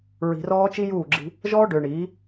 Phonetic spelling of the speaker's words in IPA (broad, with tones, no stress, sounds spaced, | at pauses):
ɹ i̤˨ r ɔː˦ t͡ʃ i˦ j uː˦˨ ɡ͡ǁ i̤˦ | ʒ ɔː˦ ɖ ʏː˨ ɳ iː˨˦